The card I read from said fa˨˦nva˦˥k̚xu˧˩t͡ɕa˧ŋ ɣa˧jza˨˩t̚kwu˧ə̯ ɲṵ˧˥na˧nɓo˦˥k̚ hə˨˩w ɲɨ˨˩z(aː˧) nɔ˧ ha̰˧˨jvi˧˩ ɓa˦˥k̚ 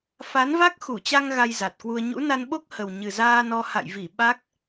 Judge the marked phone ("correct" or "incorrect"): correct